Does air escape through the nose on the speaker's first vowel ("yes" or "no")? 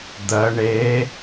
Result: no